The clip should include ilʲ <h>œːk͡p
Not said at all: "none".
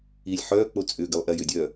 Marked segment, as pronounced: ħ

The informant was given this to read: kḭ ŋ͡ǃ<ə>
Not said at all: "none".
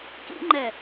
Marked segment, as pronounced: ɛ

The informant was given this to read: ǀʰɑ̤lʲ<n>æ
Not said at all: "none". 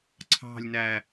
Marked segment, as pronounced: n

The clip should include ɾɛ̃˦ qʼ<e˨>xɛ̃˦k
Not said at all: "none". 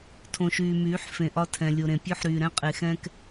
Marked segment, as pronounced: e˨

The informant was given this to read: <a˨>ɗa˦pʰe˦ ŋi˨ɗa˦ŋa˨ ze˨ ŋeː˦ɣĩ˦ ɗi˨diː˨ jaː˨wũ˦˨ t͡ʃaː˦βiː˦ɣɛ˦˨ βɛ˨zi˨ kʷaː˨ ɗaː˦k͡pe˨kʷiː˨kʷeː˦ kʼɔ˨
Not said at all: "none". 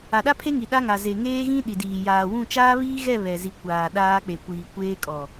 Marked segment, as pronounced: a˨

